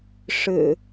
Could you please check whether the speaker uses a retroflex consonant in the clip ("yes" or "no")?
yes